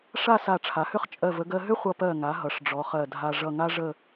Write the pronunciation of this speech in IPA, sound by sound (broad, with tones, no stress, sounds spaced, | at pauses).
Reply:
ʂ a˥˧ s a˧˩ ʈ͡ʂʰ a˩˧ h ʏ˥ χ t͡ʃʼ ɜ˧˩ v ə˧ ɡ ɜ˧ ɦ ʏ˥ χʷ ʌ˧ p ɜ˧˩ ŋ a˩˧ ɦ ʌ˩˧ ʂ ɖ͡ʐ ɔ˩˧ χ ɜ˧˩ dʱ a˧ ʐ ʌ˧˩ ŋ a˥ ʐ ə˥˧